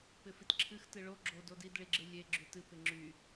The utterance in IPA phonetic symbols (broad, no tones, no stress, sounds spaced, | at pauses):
p ɪ f i t ǁʰ ɨ x t ɨ ɭ o ɡ͡ǁ o d o d i d ɭ i ɡ͡ǁ ɨ lʲ e ɡ͡ǁ y t ɨ p ɪ ŋ͡ǁ y